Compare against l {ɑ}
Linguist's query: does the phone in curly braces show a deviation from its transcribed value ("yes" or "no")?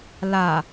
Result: yes